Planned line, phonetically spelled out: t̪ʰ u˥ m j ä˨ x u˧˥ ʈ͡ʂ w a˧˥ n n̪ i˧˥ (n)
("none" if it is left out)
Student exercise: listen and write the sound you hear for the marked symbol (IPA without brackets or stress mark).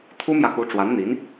n